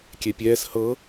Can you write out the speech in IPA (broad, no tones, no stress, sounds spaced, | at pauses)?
kʲ ɛ pʲ ɛː s h ɤ